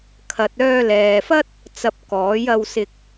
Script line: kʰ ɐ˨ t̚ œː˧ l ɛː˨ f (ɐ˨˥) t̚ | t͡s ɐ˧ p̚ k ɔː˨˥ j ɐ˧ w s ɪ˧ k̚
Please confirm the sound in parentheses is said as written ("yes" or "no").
no